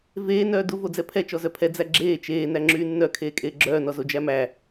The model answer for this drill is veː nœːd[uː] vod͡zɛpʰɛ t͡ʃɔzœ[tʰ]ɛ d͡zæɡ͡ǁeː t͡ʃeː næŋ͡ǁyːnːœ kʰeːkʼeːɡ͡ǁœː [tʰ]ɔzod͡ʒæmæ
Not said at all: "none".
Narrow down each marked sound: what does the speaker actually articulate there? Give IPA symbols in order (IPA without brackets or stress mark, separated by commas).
u, pʰ, n